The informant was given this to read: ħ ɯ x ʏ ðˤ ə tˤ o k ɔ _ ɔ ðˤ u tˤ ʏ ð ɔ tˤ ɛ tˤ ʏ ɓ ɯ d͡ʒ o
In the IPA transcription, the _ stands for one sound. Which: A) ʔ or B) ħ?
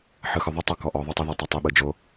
A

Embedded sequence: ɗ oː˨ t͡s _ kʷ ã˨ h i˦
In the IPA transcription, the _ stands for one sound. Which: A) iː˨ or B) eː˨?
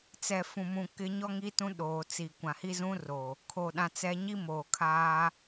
A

